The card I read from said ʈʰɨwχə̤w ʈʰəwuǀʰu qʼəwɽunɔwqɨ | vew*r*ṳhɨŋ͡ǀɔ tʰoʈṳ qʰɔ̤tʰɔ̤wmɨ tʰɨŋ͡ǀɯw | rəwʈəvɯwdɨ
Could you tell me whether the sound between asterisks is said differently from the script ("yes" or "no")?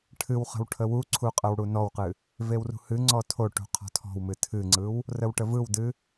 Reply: no